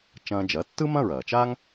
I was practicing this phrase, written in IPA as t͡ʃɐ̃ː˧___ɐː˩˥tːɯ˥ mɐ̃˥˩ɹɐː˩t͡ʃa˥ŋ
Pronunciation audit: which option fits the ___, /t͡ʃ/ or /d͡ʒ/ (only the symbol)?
d͡ʒ